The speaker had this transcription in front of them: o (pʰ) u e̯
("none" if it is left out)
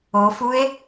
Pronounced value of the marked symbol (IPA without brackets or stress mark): f